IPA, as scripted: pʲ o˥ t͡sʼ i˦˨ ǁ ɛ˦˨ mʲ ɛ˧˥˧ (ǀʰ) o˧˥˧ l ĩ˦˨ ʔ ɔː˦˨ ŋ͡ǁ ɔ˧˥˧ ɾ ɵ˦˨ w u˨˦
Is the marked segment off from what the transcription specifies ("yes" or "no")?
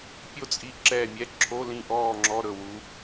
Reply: yes